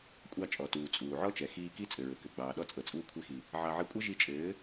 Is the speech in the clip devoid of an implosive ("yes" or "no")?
no